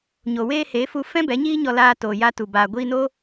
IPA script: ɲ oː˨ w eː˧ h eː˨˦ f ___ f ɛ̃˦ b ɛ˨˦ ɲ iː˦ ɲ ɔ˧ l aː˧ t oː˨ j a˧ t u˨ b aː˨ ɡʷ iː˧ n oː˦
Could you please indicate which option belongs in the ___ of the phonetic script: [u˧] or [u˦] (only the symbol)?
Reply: u˧